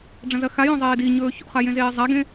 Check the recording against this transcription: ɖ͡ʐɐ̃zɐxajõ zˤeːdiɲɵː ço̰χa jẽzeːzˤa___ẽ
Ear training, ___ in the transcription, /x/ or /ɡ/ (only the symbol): ɡ